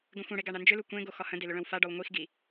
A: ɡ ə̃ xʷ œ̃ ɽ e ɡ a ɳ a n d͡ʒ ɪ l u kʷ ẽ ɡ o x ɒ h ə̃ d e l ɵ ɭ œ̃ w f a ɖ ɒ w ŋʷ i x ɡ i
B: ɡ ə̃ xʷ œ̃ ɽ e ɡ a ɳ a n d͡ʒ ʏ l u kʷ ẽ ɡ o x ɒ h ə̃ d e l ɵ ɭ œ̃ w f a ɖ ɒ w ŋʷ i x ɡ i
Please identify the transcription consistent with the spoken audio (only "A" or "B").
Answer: B